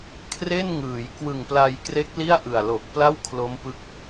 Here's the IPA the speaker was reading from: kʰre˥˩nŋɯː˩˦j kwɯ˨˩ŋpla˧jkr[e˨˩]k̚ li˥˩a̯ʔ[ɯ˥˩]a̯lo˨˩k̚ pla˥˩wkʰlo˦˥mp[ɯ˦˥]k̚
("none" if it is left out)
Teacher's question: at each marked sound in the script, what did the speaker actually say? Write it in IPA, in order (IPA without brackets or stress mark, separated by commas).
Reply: e˦˥, ɯ˨˩, ɯ˦˥